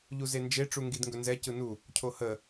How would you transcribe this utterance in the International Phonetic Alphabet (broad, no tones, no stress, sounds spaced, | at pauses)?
ʎ u z e n d͡ʒ e ʈ͡ʂ u ŋ ɡ i d ŋ ɡ ɵ n z ɛ c ɯ n u | cʰ o h ə